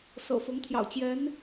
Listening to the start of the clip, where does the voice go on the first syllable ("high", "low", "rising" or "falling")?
low